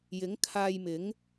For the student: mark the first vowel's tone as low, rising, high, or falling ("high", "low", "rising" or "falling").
rising